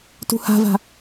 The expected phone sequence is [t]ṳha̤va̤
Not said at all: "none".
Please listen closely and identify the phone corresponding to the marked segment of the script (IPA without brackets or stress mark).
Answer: t